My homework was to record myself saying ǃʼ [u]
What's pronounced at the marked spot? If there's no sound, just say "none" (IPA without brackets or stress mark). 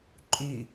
y